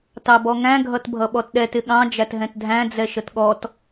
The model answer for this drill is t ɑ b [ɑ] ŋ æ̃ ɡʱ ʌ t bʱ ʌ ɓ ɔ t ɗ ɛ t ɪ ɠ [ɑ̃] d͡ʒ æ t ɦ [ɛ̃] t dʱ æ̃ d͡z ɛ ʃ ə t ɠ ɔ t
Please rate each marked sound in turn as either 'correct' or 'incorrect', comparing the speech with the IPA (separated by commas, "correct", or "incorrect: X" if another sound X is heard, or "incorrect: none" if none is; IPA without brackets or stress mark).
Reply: incorrect: ɔ, correct, correct